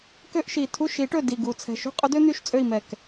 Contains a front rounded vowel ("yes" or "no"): yes